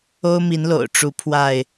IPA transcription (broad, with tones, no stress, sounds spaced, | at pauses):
o˦ ʊ̯ m i˨˦ n l o̰˨˩ ʊ̯ ʈ͡ʂ u˨˦ pʰ w a˥˨ ɪ̯